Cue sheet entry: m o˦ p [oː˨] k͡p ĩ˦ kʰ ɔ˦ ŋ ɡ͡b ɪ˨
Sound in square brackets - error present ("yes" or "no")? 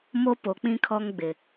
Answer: yes